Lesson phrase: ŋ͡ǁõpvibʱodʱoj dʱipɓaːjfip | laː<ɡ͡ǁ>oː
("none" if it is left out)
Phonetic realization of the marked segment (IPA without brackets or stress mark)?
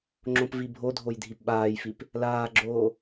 ɡ͡ǁ